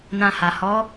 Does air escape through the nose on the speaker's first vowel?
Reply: yes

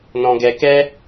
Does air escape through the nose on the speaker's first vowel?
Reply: yes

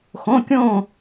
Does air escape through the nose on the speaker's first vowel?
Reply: yes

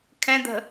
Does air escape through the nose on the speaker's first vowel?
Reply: yes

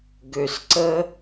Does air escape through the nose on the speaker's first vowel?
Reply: no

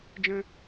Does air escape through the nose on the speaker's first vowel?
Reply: yes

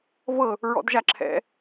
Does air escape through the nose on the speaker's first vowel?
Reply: no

